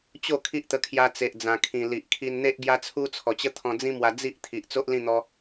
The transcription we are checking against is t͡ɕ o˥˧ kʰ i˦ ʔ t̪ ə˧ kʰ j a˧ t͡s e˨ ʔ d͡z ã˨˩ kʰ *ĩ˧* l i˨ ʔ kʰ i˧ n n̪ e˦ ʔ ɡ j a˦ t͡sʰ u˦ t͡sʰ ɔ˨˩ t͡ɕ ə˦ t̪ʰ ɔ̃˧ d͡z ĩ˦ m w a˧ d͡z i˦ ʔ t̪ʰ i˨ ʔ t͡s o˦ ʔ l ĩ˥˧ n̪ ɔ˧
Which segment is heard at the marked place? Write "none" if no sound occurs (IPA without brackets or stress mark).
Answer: ĩ˨˩